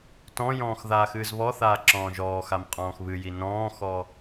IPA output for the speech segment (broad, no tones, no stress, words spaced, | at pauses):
tɔ̃jɔ̃ːx ðaːxɨːzβɔθaː ǁɔ̃ːʒɔːxam qʼɔ̃ːxβɨji nɔ̃ːxɔ